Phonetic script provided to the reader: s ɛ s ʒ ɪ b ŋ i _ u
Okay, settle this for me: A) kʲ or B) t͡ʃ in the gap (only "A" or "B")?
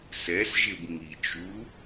B